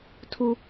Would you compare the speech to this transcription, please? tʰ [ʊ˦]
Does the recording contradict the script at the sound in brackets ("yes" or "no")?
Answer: yes